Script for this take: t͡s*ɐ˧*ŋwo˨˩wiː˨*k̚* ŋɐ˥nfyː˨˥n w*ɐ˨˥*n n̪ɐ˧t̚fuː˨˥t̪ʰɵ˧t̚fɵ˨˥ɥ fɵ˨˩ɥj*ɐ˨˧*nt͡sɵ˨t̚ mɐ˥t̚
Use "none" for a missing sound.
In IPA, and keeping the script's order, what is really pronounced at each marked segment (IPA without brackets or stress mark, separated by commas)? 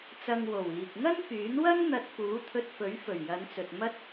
ɐ˧, k̚, ɐ˥, ɐ˨˧